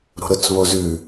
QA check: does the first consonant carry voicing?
yes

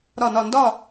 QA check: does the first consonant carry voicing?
yes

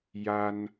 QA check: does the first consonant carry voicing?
yes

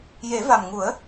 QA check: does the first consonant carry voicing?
yes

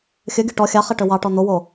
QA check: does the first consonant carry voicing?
no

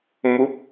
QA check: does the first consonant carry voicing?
yes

